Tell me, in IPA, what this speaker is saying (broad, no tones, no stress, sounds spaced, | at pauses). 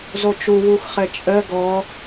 z o t͡ʃ u w u x χ ɘ t͡ʃʼ ə ɡ ɔ